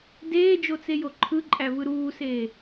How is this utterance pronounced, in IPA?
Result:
d eː d͡ʒ o t͡s e j o ǃʰ ɯ ǃʼ æ v ɯ ɾ uː s eː

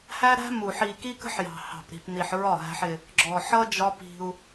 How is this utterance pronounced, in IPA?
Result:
h æ˦ ɾ æ̤˦ m u˨ ħ i˨ k i˦ k ə̤˦ ħ j ɑ̤˨ h ɑ̤˨ p ɾ i̤˨ p n i˨ ħ ɹ ɒ˦˨ ɦ æ̤˦ ħ ɪ˦ | ɡ͡ǁ ɔ˨ ħ ʌ˦ d͡ʒ ɒ˦ p i̤˦ u̯

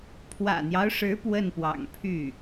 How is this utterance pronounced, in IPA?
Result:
pʰ w ä̰˨˩ n̪ j ɑ˦ ʊ̯ ʂ ɻ̩˧˥ p w ə˥˩ n p w ɑ̰˨˩ ŋ pʰ y˥˩

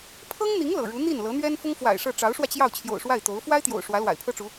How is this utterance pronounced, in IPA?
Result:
pʰ ɤ˥ ŋ n̪ i˧˥ ŋ l ɤ̰˨˩ ɻ u˧˥ n̪ i˥˩ n l ɤ˧˥ n̪ ɥ ɛ˥ n f ʊ˥ ŋ f w a̰˨˩ ɪ̯ ʂ ɤ˥˩ ʈ͡ʂ ɑ˧˥ ʊ̯ ʂ w ä˧ t͡ɕ j ɑ˥˩ ʊ̯ t͡ɕʰ j o̰˨˩ ʊ̯ ʂ w a˥˩ ɪ̯ t̪ o˧˥ ʊ̯ f w a˥ ɪ̯ t̪ j o̰˨˩ ʊ̯ ʂ w ä˧˥ l w a̰˨˩ ɪ̯ pʰ ɤ˥ ʈ͡ʂ u˧˥

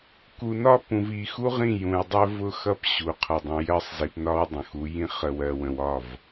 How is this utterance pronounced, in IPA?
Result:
k u˨ n ɒ˦ p ũ˨ v i˨ x u˦ ʁ ĩ˦˨ j ũ˨ j dˤ ɜ˦ v ʊ˦ x ʌ˦ p ɕ u˨ qʰ ʌ˨ dˤ ə̃˨ j ɜ˦ sˤ z i˨ p n ɒ˦ w dˤ ə̃˨ x u˨˦ j ĩ˦ χ ə˨ w ɜ˨ w ə̃˨ w ɒ˦˨ v

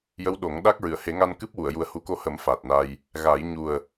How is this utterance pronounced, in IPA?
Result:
j ə˧˥ w ɗ o˨˩˦ ŋ ɗ a˦˥ k̚ ɹ ɨ˨˩˨ ə̯ h e˨˩˦ ŋ a˧ n k ɨ˦˥ p̚ w u˨˩˨ ə̯ j u˨˩ ə̯ h u˨˩˦ k o˧ h ə˨˩˦ m f a˨˩ t̚ n a˧ j | ɣ a˨˩˦ j ɲ u˨˩ ə̯

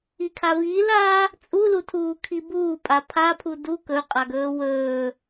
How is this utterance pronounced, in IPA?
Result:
i kʰ a v iː l aː | t͡sʼ u l u tʰ uː kʰ i b uː pʼ a pʰ a pʰ u d u k ɵ qʼ a ɡ ɵː w ɵː

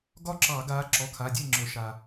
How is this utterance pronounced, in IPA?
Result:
ɡ ɒ˥˩ ǁ ɑ˧˩˧ ɡ aː˨˦ ǁ ɔ˩˧˩ kʰ a˩˧˩ dʲ e˥˩ ŋ͡ǁ ɵ˧˩˧ ʃ aː˩

